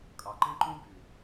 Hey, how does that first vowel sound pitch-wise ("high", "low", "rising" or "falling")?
low